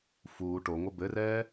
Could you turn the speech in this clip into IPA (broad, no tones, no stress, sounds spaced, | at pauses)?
f uː ʈ o ŋʷ ɘ b ɘ r ɛː